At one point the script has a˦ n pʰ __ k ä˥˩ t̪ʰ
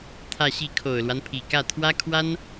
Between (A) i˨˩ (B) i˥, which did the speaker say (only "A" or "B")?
A